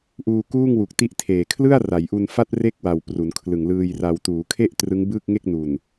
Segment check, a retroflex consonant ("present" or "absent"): absent